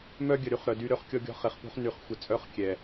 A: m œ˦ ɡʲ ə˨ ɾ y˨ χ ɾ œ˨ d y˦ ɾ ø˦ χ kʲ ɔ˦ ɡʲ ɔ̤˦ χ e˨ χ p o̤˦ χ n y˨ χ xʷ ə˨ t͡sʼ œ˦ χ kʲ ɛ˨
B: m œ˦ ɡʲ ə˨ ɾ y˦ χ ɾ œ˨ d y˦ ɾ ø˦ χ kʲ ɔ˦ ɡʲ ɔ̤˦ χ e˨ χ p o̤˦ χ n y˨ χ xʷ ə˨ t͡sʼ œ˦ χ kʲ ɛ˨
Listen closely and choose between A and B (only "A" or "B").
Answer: B